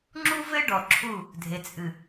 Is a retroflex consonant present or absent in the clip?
present